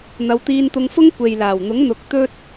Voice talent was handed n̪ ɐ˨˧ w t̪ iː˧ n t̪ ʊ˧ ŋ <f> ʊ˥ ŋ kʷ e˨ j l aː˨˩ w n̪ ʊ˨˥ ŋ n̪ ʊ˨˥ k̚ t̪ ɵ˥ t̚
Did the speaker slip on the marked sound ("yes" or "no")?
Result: no